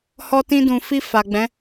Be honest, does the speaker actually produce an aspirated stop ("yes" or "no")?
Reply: no